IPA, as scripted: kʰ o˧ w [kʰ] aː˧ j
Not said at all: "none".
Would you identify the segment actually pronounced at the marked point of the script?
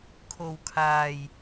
kʰ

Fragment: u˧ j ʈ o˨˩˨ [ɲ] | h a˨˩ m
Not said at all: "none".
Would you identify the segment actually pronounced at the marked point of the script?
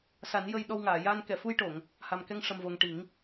ŋ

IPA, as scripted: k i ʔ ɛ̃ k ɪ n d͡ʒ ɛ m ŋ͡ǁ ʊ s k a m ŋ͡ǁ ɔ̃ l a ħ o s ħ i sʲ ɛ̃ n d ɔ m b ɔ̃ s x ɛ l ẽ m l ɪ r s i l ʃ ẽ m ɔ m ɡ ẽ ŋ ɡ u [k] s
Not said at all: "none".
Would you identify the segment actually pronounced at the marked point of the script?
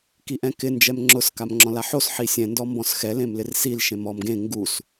none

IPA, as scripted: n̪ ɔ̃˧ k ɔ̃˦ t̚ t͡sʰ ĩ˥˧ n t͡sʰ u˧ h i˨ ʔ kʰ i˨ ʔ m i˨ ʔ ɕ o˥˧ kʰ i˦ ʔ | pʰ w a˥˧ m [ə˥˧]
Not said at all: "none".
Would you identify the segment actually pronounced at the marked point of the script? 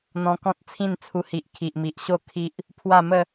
ə˥˧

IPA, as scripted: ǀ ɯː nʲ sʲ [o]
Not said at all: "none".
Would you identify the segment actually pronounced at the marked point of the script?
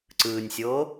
oː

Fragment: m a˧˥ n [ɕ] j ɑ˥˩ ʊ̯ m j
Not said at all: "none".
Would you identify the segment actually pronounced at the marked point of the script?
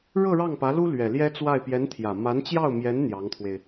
t͡ɕ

